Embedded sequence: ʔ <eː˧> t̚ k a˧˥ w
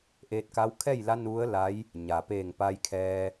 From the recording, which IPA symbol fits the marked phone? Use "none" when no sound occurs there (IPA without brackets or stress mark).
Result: eː˧